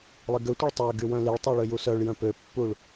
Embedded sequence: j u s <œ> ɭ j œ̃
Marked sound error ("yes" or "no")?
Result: no